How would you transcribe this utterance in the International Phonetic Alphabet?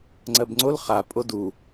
ŋ͡ǀ ɜ b ŋ͡ǀ o l χ a pʼ o d u

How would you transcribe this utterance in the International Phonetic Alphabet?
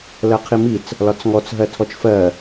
l ɜ qʰ i m i t͡s | l ɒ t͡s ŋ ɔ t͡s ɦ ɜ tʰ ɔ t͡ʃ f ɜ

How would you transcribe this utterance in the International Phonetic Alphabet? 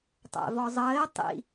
tˤ æ̰ v ɔ zˤ əː e̯ tˤ ḭ

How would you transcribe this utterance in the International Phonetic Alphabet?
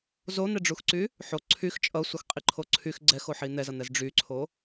z o n̪ ɛ ɖ͡ʐ u x ǀ y | ħ o ǀʰ y x t͡ʃʼ ʌ sʷ ʌ x qʼ i ǃʰ o ǀʰ y x ɡ͡ǀ ɛ x o ħ i n̪ ɛ z ʌ n̪ ɛ z ɖ͡ʐ y ǀʰ o

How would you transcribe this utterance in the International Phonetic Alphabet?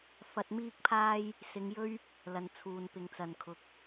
f ɐ˧ t̚ m iː˥ k̚ pʰ aː˥ j | s ɪ˨˧ ŋ j ɵ˥ ɥ | l ɐ˨ n t͡sʰ uː˨ n p ɪ˨ ŋ t͡s ɐ˨ n kʰ ʊ˨ k̚

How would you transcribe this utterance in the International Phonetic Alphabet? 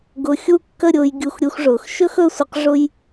ɡ ʊ˧ xʲ u˥˧ kː ə˥˧ ɾʲ ʊː˧ j ɡʲ u˧˩ x ɾʲ u˧ x ʐ ʊː˩˧ x ʃ ɵ˥ x ɵ˥˧ sʷ ə˧ q ʐ ʊ˥ j

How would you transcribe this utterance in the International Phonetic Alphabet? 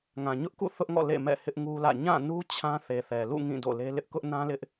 ŋ ã˨ ɲ ʊ˦ ʔ k ṵ˦˨ θ ʊ˦ ʔ ŋ ɔ̰˦˨ l ḛ˦˨ m ɛ̰˦˨ h ɪ˦ ʔ ŋ u˦ l ä̰˦˨ ɲ ã˦˨ n u˦ t͡ɕʰ ã˦ θ e˨ θ ɛ˨ l ṵ˦˨ ŋ ĩ˦˨ d o̰˦˨ l e˦ l ɪ˦ ʔ k ʊ˦ ʔ n ã˦ l ɪ˦ ʔ

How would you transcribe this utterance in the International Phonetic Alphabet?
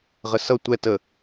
ʁ ə s ʌ tʷ ɛ t ə

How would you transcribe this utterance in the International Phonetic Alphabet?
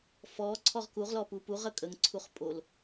f ɔ ǀʰ ɔ ʁ k u ʁ l ɔ p u p u ʁ ə kʼ ə ŋ ǀʰ u χ pʼ o l

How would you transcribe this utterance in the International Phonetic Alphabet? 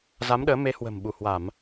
z a˨˦ m ɗ əː˨˦ m e˨˦ h w ə̤˨˩ m ɓ u˧˩ h w a˧˩˨ m

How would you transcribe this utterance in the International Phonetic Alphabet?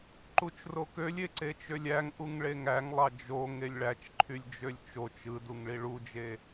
ǃ u t͡ʃ r o k ø lʲ e ǀ e t͡ʃ ø lʲ æ ŋ ʔ u ŋ ɭ e ŋ æ ŋ lˠ ɑ d͡ʒ o ŋ e lʲ ɭ æ t͡ʃ ǃʰ y lʲ d͡ʒ ø lʲ t͡ʃ o t͡ʃ ɯ d u ŋ ɭ i ɭ u d͡ʒ e

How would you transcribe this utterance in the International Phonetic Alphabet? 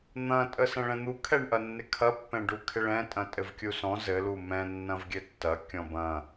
n̪ ɐ̃ tʼ ə s ɐ̃ ɭ ɛ̃ n̪ u kʰ ɛ ɳ ʔ ɐ nː ɪ kʰ ɐ pː ɛ̃ ɖ u kʰ ɪ ɭ ɛ̃ tʼ ɐ̃ tʼ ɘ v kʲ u s ɔ̃ z ɘ l u m ɛ̃ nː ɐ̃ v ɡʲ ɘ tː ɐ kʲ ɔ̃ b ɐ̃

